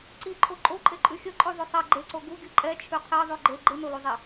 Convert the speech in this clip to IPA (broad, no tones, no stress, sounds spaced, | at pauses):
ǀ i ǃʰ o ǃʼ o ǃʼ e ǃʼ ʉ xʲ ə ǃʼ ʉ ðˤ ʉ sˤ ɛ ɡ͡ǃ e ǀ o ɡ u ɡʲ ɯ ǃʼ ɛ t͡ʃʰ ʉ qʰ e ðˤ ʉ ɡ͡ǃ e ɡ͡ǃ ɯ n o l u zˤ e